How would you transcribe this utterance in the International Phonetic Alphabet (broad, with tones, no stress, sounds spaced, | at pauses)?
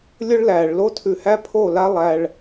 lʲ ʊ˦ ɭ l æ˨ ɭ l o˦ tʰ ʉ˧ h æ˦ pʰ o˦˨ l a˦ lˠ æ˧ ɭ